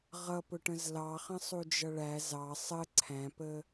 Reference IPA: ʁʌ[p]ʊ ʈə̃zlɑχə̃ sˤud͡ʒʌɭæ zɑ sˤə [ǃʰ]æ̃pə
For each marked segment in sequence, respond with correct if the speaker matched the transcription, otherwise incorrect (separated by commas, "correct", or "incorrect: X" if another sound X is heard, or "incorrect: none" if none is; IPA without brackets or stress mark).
correct, incorrect: ǀʰ